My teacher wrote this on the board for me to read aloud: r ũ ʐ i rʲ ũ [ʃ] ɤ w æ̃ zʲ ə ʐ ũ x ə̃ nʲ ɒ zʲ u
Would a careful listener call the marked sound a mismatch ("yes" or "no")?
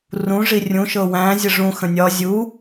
no